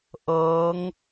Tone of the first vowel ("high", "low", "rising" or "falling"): rising